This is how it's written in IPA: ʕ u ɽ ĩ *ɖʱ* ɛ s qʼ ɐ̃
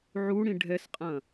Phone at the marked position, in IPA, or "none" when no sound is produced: ɖʱ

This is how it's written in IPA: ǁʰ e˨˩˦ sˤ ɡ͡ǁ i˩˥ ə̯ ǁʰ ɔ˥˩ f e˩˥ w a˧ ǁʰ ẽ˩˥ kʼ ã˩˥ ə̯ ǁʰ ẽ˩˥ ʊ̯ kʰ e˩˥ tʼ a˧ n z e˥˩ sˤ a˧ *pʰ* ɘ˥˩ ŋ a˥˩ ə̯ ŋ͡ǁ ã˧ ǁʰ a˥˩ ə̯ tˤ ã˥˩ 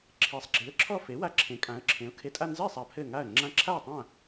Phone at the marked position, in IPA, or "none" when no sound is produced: pʰ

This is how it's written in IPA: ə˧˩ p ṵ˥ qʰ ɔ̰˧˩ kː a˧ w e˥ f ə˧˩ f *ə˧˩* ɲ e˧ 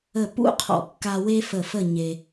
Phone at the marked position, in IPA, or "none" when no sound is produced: ə˥˧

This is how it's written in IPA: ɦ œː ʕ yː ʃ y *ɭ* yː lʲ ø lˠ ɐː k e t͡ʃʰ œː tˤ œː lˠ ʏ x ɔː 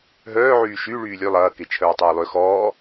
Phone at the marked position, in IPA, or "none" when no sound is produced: ɭ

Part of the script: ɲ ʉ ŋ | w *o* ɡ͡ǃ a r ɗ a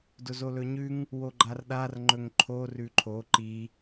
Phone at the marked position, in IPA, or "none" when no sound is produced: o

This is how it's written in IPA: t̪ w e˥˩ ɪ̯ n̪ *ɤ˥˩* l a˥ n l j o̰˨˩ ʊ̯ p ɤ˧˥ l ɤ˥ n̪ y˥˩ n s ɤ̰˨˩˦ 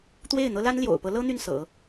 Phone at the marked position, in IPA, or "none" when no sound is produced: ɤ˥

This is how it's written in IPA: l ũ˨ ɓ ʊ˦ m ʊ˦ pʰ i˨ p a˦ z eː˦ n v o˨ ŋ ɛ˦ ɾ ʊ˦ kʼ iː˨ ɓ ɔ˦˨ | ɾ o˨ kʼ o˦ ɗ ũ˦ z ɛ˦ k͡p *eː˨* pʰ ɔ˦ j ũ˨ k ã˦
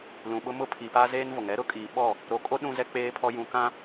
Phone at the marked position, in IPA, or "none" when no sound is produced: eː˦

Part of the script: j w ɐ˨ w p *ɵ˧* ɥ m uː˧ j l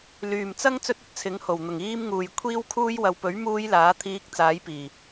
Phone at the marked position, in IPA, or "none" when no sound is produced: ɵ˨˥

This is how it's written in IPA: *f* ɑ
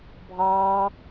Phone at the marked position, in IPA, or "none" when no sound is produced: bʱ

